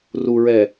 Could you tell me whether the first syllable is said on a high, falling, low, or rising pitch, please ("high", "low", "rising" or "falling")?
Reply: low